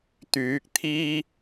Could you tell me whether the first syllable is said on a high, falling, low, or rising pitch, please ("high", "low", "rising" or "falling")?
rising